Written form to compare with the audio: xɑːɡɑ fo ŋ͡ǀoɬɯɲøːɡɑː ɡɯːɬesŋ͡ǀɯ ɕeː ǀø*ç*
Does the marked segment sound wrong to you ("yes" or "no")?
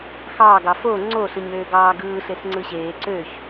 no